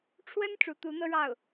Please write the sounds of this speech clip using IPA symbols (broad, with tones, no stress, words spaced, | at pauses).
ʈ͡ʂʰwə˥n ʈ͡ʂu˧˥t̪u˧˥n̪ɤ˥ɻɑ˥˩ʊ̯